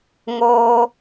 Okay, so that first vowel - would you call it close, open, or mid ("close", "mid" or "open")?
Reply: mid